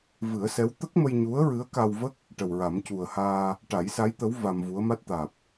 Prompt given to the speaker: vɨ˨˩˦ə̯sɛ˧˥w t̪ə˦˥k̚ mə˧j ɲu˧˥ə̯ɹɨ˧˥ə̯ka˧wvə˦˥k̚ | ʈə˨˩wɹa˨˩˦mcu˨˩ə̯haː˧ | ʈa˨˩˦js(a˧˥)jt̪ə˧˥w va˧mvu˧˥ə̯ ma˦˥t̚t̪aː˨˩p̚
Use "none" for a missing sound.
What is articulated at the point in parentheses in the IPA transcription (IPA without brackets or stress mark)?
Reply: a˧˥